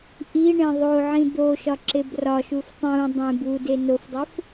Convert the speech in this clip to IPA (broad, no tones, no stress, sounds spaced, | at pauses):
ʔ i ɳ ẽ ðˤ o ʕ ĩ d̪ o ʃ ɒ ǁ e b r ɒ ʃ u f tˤ ũ dˤ ẽ b u d e n o f dˤ e f